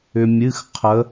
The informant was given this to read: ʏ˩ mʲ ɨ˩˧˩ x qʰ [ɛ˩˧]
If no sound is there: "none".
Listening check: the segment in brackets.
ə˩˧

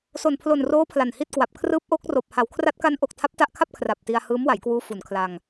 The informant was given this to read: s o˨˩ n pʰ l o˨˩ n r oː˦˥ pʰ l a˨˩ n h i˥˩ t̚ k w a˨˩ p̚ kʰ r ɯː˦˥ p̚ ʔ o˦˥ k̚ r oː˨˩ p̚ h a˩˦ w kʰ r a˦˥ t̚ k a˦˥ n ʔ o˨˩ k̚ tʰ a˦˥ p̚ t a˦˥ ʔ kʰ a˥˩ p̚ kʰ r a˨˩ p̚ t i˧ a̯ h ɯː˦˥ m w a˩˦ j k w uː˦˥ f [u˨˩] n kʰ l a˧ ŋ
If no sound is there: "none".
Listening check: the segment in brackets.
u˩˦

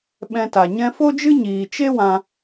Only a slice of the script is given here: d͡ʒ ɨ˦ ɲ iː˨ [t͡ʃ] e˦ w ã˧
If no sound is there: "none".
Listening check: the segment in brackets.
t͡ʃ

